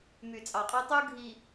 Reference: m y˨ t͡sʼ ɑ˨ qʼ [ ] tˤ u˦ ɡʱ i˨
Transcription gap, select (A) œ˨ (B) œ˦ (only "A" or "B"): B